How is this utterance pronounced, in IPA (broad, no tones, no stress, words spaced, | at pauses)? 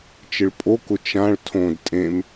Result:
t͡ʃɪɭpʼokʊ t͡ʃãɭ tʰõd tʼẽm